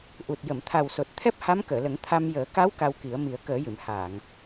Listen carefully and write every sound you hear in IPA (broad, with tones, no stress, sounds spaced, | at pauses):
ʔ u˨˩ t̚ j ə˨˩˨ m t̪ʰ a˨˩ w s o˨˩ t̚ t̪ʰ ɛ˦˥ p̚ h a˧˥ m k əː˨˩˨ l ə˨˩˦ ŋ t̪ʰ a˧ m j əː˨˩˦ k a˧˥ w k a˧ w k i˨˩˦ ə̯ m i˨˩˦ ə̯ k əː˨˩˦ j ɨ˨˩˨ m h aː˨˩˨ ŋ